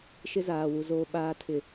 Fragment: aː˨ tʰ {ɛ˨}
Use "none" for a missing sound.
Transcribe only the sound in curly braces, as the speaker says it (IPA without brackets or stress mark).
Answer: ɪ˨